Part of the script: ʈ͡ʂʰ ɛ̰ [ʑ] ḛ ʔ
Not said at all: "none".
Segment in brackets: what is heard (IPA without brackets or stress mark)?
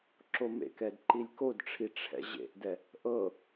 ʑ